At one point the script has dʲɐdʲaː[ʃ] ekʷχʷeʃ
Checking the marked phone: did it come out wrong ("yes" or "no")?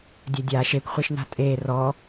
no